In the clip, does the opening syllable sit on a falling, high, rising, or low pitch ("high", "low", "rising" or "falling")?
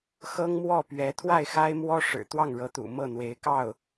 high